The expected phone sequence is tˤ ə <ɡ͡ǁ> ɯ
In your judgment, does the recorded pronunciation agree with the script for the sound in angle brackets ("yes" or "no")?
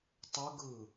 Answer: no